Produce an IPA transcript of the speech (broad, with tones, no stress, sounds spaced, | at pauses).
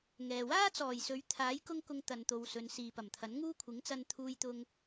ŋ ɛː˨ w aː˥ t͡s ɔː˨˩ j s ɵ˨˥ ɥ t̪ʰ aː˨˥ j k ʊ˥ ŋ k ʊ˧ ŋ t̪ ɐ˨ n t̪ o˨ w s ɵ˨˧ n s iː˨ p ɐ˨˩ m t̪ʰ ɐ˨˥ n ŋ uː˥ kʷʰ ɪ˨˥ ŋ t͡s ɐ˧ n t̪ʰ uː˧ j t̪ ʊ˧ ŋ